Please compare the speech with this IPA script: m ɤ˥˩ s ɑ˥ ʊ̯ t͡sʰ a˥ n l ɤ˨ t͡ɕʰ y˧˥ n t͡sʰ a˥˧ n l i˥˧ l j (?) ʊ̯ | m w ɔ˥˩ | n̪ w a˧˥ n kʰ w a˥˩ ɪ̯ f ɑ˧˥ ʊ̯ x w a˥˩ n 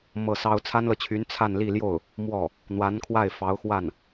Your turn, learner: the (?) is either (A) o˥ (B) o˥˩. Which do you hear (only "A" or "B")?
B